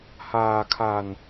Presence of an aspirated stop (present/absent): present